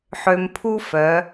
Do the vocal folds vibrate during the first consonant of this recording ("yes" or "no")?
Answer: no